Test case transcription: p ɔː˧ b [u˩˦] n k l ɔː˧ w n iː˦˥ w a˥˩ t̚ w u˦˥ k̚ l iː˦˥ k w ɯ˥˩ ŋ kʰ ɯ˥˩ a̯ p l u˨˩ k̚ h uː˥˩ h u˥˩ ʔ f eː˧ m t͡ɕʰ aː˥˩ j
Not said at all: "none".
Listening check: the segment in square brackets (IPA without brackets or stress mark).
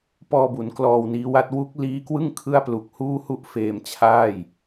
u˩˦